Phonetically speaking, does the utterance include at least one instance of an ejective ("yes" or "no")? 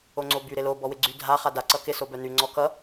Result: no